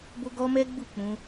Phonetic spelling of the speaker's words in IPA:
b o˦ ɡ ɔ˦ m ɛ˦ ɡ͡b u˦˨ k͡p ũ˧

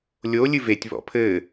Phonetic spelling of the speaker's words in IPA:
lʲ o lʲ ɨ v e tʲ β ɔ̰ pʰ ɘ

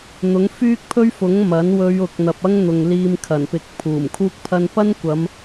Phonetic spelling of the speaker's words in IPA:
n̪ ʊ˨˥ ŋ f yː˥ k̚ pʰ ɵ˥ ɥ f ʊ˨˥ ŋ m ɐ˨˥ n w ɵ˨˧ ɥ ʊ˨ k̚ n̪ ɐ˨ p̚ ɐ˥ ŋ n̪ ʊ˨ ŋ l iː˧ m kʰ ɐ˨˩ n p ɪ˨ k̚ pʰ uː˨˩ m kʰ uː˥ k̚ pʰ ɐ˥ n p ɐ˥ n kʷ ɐ˨˧ m

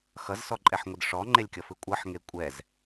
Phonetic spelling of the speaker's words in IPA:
x ʌ z s ɔ ǃʼ ɛ ħ ŋʷ ɯ d ʂ ɔ ŋ͡ǃ e lʲ kʲ ʌ f ɯ kʷʼ ʌ ħ ŋ e kʷʼ ɛ z

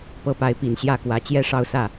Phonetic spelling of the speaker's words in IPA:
p ɤ˧˥ p a˧˥ ɪ̯ p i˨˩ n ɕ j ä˥˩ k w ä˧˥ t͡ɕ j ɛ˥˧ ʂ ɑ˥˧ ʊ̯ s ä˥˩

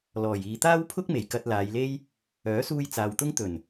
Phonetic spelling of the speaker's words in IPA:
l ɔː˨˩ j iː˨ t̪ aː˥ w pʰ ʊ˥ k̚ m e˨˩ j k ɐ˧ t̚ l aː˨˧ j l e˥ j | œː˨˥ s uː˧ j t͡s aː˨ w t̪ ʊ˥ ŋ t̪ ɵ˨˩ n

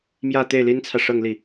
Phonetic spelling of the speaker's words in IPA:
m j ä˥˧ t̪ e˥˩ ɪ̯ l i˥ n t͡sʰ ä˨ ʂ ɤ˥˧ ŋ l i˥˩

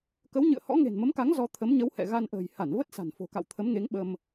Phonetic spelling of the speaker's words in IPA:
k ə˨˦ w ɲ ɨ̰˧˨ ə̯ h ɔ̰˧˥ ŋ e̤˨˩ n m ə˨˦ m k a˨˦ ŋ z ɔ˧ t̪ʰ ə˨˦ m ɲ ə˨˦ w h ɛ̰˧˨ ɣ a˧ n ʔ ə̤ː˨˩ j h a˧˩ n v ə˦˥ t̚ s a̤˨˩ n f o̤˨˩ k a̰˧˨ w t̪ʰ ə˨˦ m ŋ e˨˦ ŋ ɓ ə˧ m

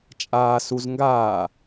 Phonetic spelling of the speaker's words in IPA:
t͡ʃʼ aː s u z ŋ ɡ aː

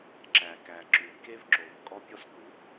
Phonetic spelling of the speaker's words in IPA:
ǁ æ˨ k æ˨ ǁ ʉ˨ k e˦ v ǁ o˨ v kʼ ɔ˧ pʲ ɔ˧ s k u˨˦ k

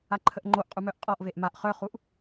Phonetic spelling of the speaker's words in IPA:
a ǃʰ ə ʔ ŋ͡ǃ o ʔ qʼ u m œ ʔ qʼ ɔ ʔ v e ʔ m a ʔ χ œ χ u ʔ

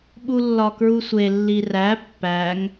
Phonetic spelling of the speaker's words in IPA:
ɓ u lː ɒ k ɹ u sʷ e lː i r æ pː æ ŋ

